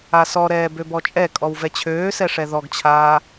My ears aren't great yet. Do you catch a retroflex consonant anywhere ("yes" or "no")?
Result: yes